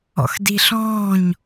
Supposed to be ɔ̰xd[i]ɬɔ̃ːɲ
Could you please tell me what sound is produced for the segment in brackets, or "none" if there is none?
i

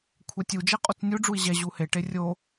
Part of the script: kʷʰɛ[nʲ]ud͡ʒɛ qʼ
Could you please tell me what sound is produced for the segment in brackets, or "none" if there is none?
tʲ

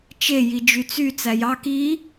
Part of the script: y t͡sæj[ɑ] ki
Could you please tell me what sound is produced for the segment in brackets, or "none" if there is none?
ɑ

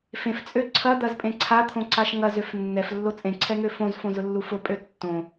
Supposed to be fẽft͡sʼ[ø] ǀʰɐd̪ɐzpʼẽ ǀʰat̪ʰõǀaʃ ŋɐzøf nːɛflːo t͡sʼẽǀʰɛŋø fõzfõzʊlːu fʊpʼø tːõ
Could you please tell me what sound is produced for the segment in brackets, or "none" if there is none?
ø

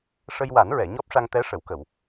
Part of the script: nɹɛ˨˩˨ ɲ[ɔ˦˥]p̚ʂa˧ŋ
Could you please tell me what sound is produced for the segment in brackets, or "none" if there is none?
ɔ˦˥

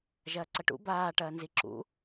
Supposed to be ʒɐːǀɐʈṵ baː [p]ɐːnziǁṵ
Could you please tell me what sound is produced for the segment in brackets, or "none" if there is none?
ʈ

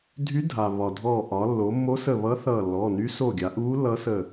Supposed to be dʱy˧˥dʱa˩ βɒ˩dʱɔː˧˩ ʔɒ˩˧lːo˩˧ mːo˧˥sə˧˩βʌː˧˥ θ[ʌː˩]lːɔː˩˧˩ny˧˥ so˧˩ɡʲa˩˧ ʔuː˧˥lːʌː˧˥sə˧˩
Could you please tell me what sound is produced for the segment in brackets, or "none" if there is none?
ʌː˧˩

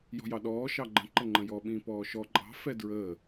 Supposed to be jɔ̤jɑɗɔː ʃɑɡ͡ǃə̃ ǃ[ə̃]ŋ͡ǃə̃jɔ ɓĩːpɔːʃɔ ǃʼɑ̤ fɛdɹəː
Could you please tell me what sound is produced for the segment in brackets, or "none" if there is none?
ə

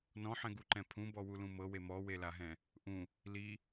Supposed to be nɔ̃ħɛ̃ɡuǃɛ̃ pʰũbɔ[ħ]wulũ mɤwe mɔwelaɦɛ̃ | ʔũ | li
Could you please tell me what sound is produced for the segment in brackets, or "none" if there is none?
none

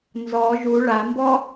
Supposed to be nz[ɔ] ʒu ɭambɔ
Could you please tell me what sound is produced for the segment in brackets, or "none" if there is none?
ɔ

